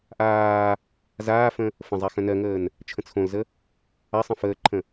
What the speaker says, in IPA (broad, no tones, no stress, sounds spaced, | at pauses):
ʔ aː | z aː f ə̃ | f ə̃ zˤ a x œ̃ n ɜ ŋ əː n | t͡ʃʰ ə̃ t͡sʰ õ l z ə | a sˤ ə̃ f əː ǃʰ ə̃